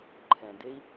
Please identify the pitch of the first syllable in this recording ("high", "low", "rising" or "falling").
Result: low